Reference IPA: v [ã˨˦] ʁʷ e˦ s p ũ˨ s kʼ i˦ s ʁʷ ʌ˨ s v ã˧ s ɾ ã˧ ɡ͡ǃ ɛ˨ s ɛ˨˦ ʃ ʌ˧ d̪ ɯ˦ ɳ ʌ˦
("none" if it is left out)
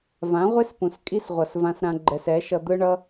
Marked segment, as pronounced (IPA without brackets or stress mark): ã˨˦